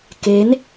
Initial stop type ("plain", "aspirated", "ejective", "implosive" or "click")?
plain